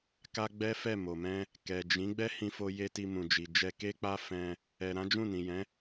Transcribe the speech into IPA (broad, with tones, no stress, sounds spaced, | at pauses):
k a˦ ɡ͡b ɛ˦ f ɛ˦˨ m o˨ m ɛ̃˧ | k ɛ˨ d͡ʒ ĩ˨˦ ɡ͡b ɛ˦ h ĩ˧ f o˧ j e˦ t i˧ m ũ˨ d͡ʒ i˨ d͡ʒ ɛ˧ k e˦ k͡p a˦ f ɛ̃˧ | ɛ˨ ɾ ã˨˦ d͡ʒ ũ˦˨ n ĩ˨ j ɛ̃˨˦